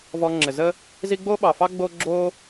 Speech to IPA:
vɔ˧ŋ͡ǁɘ˨zə˦ | zi˦ ɡ͡bo˦ɓɑ˨fɑ˦ ɡ͡bo˦ ɡ͡ǁo˦

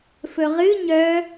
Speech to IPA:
fɵʁɨ ɲœ

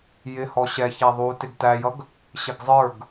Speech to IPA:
jɪhɔ ɕɛçæ ðˤutɪɡ tæjʌɡ | ɕɪɡzˤə˞ɡ

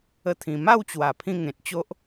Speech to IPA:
ə˥˧t̪ʰĩ˧ ma˥˧wt͡ɕwa˨˩pʰĩ˧ ŋẽ˨t̚t͡ɕo˦ʔ

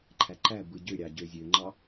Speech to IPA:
ǃʰæǃæ bɯɟøɾʲɑ ɟøzʲøŋ͡ǃɑ

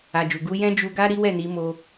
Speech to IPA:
a˨d͡ʒu˨ ɡu˨˦jɛ̃˦ d͡ʒu˧ɡa˦ ɾi˦wɛ˦˨ni˨˦mo˧

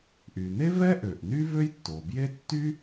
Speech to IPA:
ʔy˩ne˥vɛ˥ ʔø˩ʔny˥vø˥jtːo˩ bje˥ tːy˥

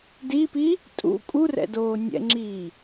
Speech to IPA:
dipi | tʼṵ kʼurɛ̰doː nʲɛ̰ŋ͡ǁiː

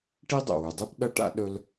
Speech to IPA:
ʈi˥dˤo̰˩wʉ˩dˤɨ˥p ɗɐ˥ʈa̰˥ ɗɵ˥l

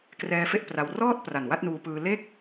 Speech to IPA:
krɛː˦˥fe˥˩ʔ pra˧w rɔː˥˩t̚ pra˨˩nwa˥˩t̚nuː˧pɯː˧ le˥˩k̚

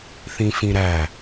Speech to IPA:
θĩfĩɾæ

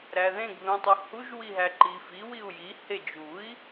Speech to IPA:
ɾæðẽɡ ðũtˤuhuʒ wiɦæǃifi wiu̯ji hed͡ʒui̯

